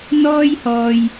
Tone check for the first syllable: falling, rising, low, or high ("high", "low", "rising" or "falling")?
high